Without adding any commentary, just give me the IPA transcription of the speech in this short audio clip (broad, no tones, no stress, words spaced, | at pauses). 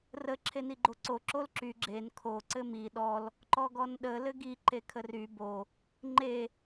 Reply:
rə ǁʰeniɡ͡ǃoǀo ǁolǁy ɡ͡ǁen kʰo ǀɘmi ɗɔl | ǃɔɡɔnɗə lɘɡi ǃekʰəry bo | ŋ͡ǃe